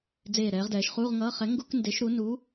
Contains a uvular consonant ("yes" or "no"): yes